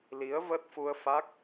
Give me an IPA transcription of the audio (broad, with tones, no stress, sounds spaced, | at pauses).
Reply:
l i˨˦ ə̯ v ə˦˥ t̚ f u˧ ə̯ f a˦˥ k̚